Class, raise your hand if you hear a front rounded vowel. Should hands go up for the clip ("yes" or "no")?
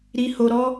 no